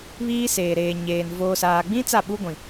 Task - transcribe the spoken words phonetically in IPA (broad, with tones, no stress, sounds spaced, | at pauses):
β iː˦ s eː˨ ɾ eː˨ ɲ eː˨ n v oː˨ s aː˨ ɡ͡b ĩ˦ t͡s a˦˨ ɓ u˦ ɡʷ ĩ˨